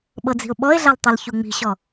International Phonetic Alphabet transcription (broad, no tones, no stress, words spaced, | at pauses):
ɓɤd͡zi̤ʊ̯ɓɔɪ̯ɮal tˤɯlçuŋ͡mi̤ɕɔ